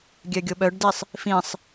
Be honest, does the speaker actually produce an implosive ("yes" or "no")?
yes